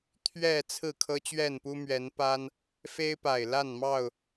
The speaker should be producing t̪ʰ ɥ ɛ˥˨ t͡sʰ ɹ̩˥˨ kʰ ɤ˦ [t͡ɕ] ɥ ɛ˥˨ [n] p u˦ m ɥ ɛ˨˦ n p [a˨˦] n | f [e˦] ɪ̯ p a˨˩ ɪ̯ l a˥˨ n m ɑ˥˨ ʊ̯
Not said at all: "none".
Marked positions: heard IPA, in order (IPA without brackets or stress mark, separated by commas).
t͡ɕ, n, a˦, e˦